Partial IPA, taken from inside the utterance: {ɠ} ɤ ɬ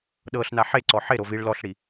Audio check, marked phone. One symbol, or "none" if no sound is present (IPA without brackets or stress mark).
ɗ